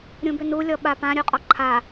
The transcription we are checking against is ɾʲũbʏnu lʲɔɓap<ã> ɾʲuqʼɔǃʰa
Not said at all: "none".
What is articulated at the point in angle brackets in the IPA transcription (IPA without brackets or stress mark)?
ã